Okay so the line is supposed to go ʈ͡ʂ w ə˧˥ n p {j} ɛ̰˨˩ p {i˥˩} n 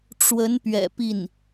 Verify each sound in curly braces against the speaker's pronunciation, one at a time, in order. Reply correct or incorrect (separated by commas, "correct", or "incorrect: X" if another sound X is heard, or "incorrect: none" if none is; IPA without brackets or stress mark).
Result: incorrect: ɥ, correct